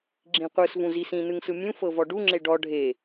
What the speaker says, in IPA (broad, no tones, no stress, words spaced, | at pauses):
ɡ͡ǁĩqʷɯs vũzisĩ nɯŋsɯmʲũ fɤvɔɖu ŋ͡ǁeɖɔ ɖʱe